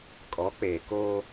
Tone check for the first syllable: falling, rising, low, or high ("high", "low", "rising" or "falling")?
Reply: rising